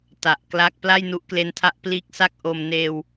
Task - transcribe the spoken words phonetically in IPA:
ta˨˩ʔkla˦˥k̚ pla˥˩jnu˦˥ʔkle˦˥ntʰa˦˥ʔ pliː˦˥k̚sa˥˩k̚ ʔo˧m neː˧w

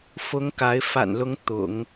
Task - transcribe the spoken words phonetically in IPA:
fʊ˧˥ŋ ka˧˥ɪ̯ fa̰˨˩nlʊ˧˥ŋ t̪ʊ̰˨˩˦ŋ

